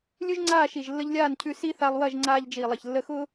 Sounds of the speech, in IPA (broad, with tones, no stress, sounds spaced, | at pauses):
lʲ ʉ˦ ʒ ŋ͡ǀ aː˦˨ ʃ i˨ ʒ lː ə˧ ʎ lʲ aː˦˨ n cʰ ʉ˧ s i˧ θ a˧ lˠ w ɐ˦˨ ʒ ŋ͡ǀ aː˧ ʎ d͡ʒ iː˨ lˠ ɐ˨ ç lː ə˧ x ʊː˦